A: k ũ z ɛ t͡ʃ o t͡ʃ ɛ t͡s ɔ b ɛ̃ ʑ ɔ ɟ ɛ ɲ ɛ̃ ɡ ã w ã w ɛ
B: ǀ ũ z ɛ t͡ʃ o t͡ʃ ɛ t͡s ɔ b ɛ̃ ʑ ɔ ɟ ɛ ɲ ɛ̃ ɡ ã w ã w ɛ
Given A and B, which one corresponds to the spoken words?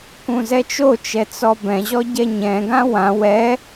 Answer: A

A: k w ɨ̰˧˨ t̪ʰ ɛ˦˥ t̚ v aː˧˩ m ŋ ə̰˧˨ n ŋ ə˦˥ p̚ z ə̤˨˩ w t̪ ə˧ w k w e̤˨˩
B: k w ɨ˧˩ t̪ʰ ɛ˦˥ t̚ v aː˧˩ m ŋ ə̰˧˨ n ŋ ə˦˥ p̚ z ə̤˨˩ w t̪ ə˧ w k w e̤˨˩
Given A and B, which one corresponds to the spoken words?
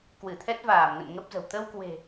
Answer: B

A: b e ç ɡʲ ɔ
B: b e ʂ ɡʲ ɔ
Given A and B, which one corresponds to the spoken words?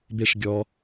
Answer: B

